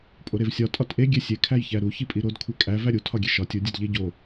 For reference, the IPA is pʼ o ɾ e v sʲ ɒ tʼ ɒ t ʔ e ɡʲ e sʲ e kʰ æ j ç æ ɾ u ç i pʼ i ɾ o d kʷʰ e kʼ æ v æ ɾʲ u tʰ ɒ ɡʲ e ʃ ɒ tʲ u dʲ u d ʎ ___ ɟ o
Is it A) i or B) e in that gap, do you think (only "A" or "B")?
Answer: B